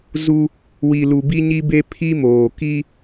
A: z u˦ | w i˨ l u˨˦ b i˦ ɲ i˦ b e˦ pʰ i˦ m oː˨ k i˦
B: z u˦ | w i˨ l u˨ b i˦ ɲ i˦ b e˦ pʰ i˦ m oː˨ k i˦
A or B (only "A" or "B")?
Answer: B